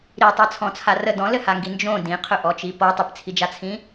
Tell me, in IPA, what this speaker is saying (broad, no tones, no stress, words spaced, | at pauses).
ɾitˤɜt͡sʰɔ̃t͡sʰa rə dɔ̃lɘhaŋɡi nd͡ʒõ dĩqʰɵʔɔt͡ʃi pɔ tˤɘpt͡sʰid͡ʒat͡sʰĩ